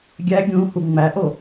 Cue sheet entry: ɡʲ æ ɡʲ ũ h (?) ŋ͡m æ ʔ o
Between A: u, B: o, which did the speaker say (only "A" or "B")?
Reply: A